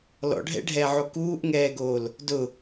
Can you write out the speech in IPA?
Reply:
lɔ̰ɖʱɛ̰ɖʱɛːʕo kuːʔŋɛːɡoːl | dʊ

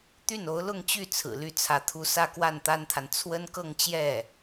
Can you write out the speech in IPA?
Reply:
t̪y˥˩no˧˥ʊ̯lʊ˥˧ŋt͡ɕy˥˩ t͡sʰɹ̩˨˩ly˥˩t͡sʰä˧˥t̪ʰu˥ sä˥˧kwa˥˩nt̪a˥nt̪ʰa˨n t͡sʰwə˥nkɤ˥˧ŋt͡ɕjɛ˥˩

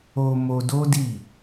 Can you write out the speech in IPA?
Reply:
o˧ mo˧do˦di˦˨

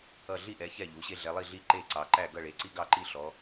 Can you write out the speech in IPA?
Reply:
ʌ˥˨ ɮi˥˨ʔɛ˨˦ çɛ˥˨ʎu˨˦ɕe˦ ɮɛ˨˦lˠi˥˨ɮi˥˨ ǃe˥˨ǀɑ˨˦ǃæ˥˨ ɡʌ˥˨ɭe˨˦ǀi˦ ɡɑ˥˨ǃi˥˨ɬɔ˨˦

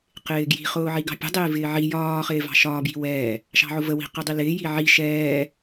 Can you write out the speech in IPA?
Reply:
qɪːɡji̤ χʊːʕiɡɑ̤pʲə̤ dˤɪːvɪːʕi jɒː χɪːvɑ̤ʃɒː bji̤wɛː | ʃɑ̤ʕʊvə wi̤ qɪdˤilɪː jiʕi ʃɛː

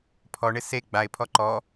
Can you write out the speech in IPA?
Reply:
pʰɔɳɪ se ɡ͡baɪ̯pʰɔ ǃɔ

